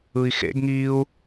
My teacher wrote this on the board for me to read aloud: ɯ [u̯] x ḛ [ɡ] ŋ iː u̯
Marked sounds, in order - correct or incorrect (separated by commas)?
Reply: incorrect, correct